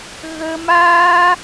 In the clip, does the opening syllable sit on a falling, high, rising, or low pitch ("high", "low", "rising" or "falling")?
low